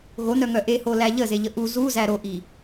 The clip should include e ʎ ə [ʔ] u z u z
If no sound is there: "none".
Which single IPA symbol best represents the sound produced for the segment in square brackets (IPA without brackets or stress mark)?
ʔ